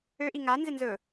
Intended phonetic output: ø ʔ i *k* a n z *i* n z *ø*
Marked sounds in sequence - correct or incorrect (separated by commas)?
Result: incorrect, incorrect, incorrect